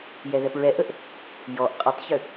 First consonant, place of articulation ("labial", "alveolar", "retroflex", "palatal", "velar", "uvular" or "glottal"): palatal